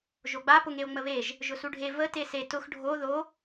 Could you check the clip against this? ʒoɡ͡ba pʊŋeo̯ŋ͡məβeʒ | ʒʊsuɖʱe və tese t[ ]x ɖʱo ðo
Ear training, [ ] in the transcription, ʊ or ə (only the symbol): ʊ